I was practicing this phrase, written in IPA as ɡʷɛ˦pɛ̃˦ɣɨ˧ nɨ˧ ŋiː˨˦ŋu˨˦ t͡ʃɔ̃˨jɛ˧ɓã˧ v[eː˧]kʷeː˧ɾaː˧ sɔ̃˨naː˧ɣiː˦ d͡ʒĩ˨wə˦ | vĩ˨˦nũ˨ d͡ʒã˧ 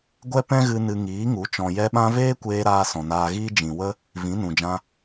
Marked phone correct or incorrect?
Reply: incorrect